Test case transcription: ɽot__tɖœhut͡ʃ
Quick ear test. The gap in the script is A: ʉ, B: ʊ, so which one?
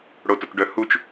B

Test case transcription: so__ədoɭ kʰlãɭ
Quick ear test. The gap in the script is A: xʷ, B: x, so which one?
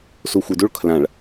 A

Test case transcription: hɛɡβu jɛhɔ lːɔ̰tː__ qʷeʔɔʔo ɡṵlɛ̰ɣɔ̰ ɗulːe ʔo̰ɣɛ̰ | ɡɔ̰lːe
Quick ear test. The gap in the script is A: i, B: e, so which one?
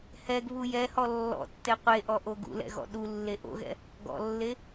B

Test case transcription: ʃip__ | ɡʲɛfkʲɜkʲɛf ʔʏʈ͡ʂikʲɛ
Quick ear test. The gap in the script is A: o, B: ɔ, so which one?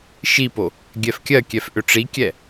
A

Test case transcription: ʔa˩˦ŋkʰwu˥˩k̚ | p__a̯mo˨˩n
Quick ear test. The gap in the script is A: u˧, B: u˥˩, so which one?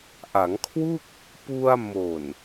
A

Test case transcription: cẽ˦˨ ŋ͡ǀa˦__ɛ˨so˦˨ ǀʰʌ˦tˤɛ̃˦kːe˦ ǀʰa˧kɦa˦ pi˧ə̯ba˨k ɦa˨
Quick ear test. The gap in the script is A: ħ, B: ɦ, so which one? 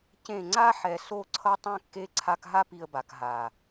A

